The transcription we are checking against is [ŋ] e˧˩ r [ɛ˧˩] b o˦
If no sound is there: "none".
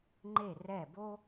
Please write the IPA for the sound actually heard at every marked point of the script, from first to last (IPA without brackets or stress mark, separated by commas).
ŋ͡ǃ, ɛ˧˩